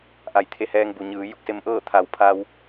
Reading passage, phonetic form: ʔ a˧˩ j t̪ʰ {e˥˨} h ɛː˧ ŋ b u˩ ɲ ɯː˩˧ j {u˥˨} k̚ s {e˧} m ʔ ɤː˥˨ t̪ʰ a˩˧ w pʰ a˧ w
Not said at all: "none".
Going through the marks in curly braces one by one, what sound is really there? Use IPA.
e˧˥, u˥˨, e˧

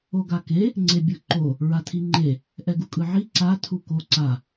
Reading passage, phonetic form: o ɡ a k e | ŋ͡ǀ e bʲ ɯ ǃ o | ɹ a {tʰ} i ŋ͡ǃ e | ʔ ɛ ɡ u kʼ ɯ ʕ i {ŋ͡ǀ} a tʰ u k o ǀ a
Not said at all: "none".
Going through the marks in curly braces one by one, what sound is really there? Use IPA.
tʰ, ǀ

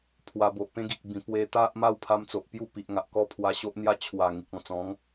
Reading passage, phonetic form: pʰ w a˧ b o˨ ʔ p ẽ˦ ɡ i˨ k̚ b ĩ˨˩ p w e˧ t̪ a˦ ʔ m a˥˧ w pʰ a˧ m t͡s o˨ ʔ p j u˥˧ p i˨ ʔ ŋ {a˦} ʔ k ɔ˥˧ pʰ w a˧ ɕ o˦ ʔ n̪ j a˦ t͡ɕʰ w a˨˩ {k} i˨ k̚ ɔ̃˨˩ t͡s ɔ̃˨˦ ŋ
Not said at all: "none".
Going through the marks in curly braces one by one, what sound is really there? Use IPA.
a˨, ŋ

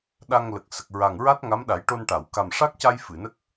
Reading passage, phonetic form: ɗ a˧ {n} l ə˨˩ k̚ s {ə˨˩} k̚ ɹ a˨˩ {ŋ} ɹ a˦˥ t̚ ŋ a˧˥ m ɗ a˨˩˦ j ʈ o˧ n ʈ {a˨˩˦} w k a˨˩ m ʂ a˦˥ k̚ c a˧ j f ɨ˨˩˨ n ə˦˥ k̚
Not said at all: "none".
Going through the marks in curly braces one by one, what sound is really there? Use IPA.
ŋ, ə˨˩, ŋ, a˨˩˨

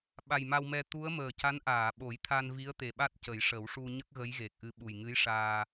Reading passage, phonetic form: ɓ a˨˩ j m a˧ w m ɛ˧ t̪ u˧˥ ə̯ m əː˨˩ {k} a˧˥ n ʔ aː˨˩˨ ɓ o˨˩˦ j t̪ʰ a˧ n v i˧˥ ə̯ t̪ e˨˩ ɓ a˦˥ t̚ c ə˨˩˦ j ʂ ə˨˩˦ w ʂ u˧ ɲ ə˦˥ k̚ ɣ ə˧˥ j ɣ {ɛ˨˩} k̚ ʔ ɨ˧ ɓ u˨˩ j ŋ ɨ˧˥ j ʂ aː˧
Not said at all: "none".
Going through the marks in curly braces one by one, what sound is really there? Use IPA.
c, e˨˩

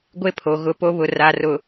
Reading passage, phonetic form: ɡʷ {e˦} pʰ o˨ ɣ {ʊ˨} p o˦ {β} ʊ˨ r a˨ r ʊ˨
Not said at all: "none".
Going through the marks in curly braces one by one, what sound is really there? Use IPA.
e˦, ʊ˦, β

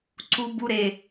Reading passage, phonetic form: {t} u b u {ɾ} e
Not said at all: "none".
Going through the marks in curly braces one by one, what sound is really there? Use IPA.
ǀ, ɾ

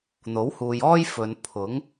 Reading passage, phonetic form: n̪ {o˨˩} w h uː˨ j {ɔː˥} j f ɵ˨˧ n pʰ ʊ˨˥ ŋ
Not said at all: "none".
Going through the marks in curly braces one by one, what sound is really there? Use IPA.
o˨˥, ɔː˥

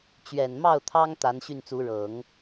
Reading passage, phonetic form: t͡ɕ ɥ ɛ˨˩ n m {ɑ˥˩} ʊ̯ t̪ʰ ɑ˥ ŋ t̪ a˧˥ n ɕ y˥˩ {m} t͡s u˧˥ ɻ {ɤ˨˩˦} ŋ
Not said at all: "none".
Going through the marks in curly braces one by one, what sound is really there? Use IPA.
ɑ˥˩, n, ɤ˨˩˦

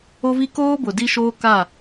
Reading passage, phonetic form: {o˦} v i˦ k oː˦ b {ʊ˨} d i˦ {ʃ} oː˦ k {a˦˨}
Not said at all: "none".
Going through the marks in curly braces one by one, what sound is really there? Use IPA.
o˦, ʊ˨, ʃ, a˦˨

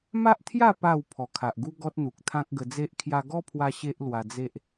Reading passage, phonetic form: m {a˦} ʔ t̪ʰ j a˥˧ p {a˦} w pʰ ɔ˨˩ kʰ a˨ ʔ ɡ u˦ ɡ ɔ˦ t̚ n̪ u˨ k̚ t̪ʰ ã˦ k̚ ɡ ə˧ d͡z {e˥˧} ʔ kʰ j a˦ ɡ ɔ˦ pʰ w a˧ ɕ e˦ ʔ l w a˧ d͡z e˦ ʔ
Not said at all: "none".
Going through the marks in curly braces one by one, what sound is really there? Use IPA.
a˦, a˥˧, e˦

